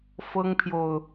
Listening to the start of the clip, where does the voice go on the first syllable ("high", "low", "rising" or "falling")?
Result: high